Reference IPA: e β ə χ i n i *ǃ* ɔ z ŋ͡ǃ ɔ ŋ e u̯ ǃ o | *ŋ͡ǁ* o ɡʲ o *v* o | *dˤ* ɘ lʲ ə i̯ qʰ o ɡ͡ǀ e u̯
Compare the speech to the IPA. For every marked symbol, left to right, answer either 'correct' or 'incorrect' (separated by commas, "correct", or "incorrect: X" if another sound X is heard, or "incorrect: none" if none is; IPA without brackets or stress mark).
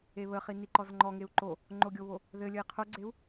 correct, incorrect: ŋ͡ǃ, incorrect: β, incorrect: ð